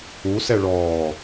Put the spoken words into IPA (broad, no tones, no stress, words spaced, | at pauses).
u sɛɭɔː